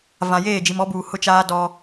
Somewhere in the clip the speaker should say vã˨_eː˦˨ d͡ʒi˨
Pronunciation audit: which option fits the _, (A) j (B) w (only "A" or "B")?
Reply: A